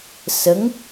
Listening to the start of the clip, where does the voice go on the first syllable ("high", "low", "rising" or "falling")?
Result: rising